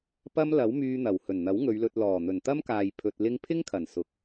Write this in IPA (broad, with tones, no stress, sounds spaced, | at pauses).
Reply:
p ɐ˥ m l ɐ˨˥ w m yː˧ n̪ ɐ˨˩ w h ɵ˨˩ n n̪ ɐ˨˥ w ŋ ɵ˨˧ ɥ l ɵ˧ t̚ l ɔː˨˩ n̪ ɵ˨˩ n t̪ ɐ˥ m k aː˨ j pʰ ɵ˧ t̚ l ɪ˥ ŋ pʰ ɪ˥ ŋ kʰ ɐ˨˩ n s ʊ˨ k̚